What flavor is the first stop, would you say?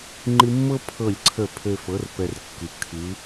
click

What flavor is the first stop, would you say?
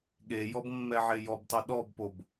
implosive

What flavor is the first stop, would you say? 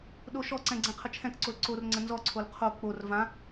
implosive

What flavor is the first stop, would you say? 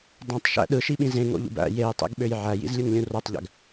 plain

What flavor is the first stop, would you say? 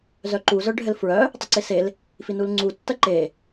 click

